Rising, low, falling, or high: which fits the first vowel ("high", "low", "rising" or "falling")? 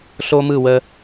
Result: high